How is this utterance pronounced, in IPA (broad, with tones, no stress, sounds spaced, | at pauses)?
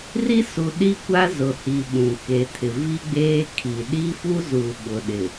r i˦ s u˨ ɗ i˦ kʷ a˦ z ʊ˨ h i˨ ɓ ũ˨ k e˨ tʰ ɪ˨ v i˦ ɡ͡b eː˦ kʰ i˨ ɗ i˦ f u˦ z u˨ ɓ ʊ˨ ɗ ɪ˨